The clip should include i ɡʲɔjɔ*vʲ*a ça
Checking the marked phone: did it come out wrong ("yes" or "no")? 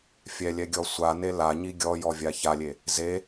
no